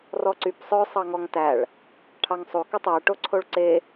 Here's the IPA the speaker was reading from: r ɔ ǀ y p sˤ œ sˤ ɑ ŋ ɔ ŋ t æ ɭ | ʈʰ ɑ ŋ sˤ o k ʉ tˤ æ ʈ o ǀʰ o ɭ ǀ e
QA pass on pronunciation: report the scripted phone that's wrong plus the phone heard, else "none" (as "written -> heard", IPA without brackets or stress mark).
none